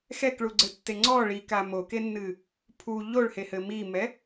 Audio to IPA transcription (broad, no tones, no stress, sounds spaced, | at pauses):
x ɛ k ɭ u ɡ͡ǀ ɘ tː e ŋ͡ǀ ɔ ɭ i k a m o k e nː ɨ | pʰ u ʎ o ɭ h e h ɘ m i m ɛ